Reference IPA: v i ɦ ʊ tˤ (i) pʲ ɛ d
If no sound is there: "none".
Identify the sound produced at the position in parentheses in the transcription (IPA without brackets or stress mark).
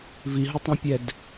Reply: ĩ